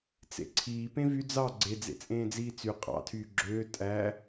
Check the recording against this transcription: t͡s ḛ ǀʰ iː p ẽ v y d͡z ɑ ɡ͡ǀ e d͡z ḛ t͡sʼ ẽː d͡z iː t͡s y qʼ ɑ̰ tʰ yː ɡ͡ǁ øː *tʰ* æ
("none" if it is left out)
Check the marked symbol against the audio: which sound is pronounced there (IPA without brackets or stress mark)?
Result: tʼ